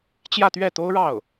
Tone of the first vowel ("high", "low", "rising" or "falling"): falling